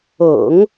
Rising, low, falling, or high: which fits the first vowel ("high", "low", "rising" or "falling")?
low